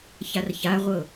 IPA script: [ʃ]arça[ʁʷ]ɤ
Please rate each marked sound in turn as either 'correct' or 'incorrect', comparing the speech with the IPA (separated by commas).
incorrect, correct